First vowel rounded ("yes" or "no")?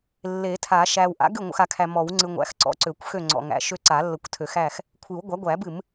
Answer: no